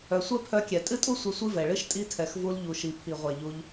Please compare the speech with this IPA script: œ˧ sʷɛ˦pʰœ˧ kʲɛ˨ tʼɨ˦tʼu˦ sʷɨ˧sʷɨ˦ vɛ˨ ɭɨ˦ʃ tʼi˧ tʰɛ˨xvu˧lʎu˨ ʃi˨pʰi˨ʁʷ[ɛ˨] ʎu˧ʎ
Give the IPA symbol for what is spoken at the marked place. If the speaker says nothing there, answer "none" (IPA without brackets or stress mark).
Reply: ɛ˨